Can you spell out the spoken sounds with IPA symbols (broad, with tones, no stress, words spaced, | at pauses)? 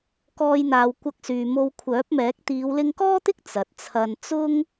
kɔː˧jn̪aː˨w kʷɐ˧k̚syː˨ mo˧wkʷʰœː˨˥p̚mɛː˨˥k̚ t̪iː˨˧wlɪ˧ŋkɔː˥t̪ɪ˥k̚ t͡sɐ˨t̚t͡sʰɐ˧n t͡sʊ˥ŋ